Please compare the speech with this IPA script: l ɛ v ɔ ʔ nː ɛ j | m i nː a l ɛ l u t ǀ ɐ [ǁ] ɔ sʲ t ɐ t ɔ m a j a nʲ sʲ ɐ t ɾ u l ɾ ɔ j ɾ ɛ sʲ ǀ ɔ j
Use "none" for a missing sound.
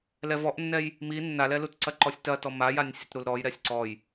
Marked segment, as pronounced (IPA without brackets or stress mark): ǃ